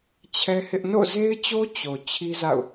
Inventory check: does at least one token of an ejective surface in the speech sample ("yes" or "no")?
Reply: no